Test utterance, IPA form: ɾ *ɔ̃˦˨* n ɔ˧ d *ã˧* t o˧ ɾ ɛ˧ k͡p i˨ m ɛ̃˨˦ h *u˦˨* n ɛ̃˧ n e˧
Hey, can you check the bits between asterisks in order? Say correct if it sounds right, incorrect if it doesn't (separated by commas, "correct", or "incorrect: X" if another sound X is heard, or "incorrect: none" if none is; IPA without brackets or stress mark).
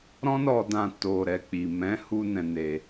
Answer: incorrect: ɔ̃˦, correct, incorrect: u˧